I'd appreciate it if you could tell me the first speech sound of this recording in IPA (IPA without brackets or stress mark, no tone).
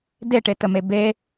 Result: d